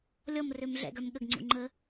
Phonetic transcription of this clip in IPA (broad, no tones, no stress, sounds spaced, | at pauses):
lʲ ɔ m r ø m ɮ ɛ̰ ɡ œ m ɠ ə ɡ ŋ͡ǀ ṵ ŋ͡ǃ ə